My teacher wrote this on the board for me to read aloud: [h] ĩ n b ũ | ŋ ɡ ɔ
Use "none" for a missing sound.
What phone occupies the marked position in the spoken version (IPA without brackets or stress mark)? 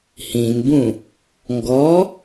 h